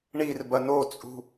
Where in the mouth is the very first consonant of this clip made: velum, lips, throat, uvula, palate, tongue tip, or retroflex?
retroflex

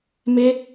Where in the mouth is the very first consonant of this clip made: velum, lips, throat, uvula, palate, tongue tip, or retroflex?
lips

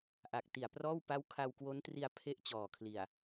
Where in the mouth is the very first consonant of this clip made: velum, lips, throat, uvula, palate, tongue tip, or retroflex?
throat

